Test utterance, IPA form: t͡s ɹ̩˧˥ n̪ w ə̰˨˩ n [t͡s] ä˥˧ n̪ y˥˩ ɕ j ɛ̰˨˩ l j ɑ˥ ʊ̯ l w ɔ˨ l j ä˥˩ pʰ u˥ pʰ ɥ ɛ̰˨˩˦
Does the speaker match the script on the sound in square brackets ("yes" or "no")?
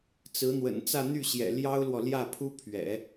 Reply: yes